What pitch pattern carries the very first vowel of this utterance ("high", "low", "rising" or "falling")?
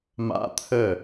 high